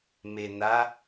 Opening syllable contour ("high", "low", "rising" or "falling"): low